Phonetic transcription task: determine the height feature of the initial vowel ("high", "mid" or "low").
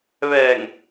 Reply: mid